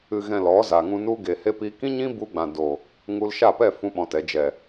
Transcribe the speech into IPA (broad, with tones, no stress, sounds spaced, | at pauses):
ɨ˨ ɣ ɛ̃˨ l ɔ˨˦ z a˨ ŋ ũ˧ n u˦ ɡ e˨ h e˦ p i˦ k ĩ˦ ɲ ĩ˦ b u˧ ɡ͡b ã˨ d o˨ | ŋ u˧ l ʃ a˦˨ p ɛ˦˨ f ũ˦ ɓ ɔ̃˧ t ɛ˨˦ d͡ʒ ɛ˨